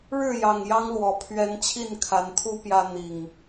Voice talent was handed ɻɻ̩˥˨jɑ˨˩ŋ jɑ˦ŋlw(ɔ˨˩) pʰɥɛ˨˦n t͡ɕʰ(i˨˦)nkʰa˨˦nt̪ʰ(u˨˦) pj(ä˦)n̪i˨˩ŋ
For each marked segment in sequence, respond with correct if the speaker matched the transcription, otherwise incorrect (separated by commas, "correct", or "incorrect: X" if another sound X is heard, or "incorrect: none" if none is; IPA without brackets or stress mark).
correct, incorrect: i˥˨, incorrect: u˦, correct